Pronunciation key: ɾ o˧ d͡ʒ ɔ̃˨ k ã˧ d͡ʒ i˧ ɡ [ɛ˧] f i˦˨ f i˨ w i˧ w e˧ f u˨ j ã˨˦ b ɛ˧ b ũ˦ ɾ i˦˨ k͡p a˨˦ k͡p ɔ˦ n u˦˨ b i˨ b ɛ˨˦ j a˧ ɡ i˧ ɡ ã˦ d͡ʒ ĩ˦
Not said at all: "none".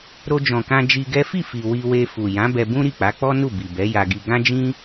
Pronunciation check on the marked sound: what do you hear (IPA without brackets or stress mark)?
ɛ˦